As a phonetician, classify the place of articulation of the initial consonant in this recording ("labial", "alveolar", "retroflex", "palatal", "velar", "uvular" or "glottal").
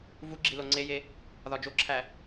labial